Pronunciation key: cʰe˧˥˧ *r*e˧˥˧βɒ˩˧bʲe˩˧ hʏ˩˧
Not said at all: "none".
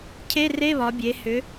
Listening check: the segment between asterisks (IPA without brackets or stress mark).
r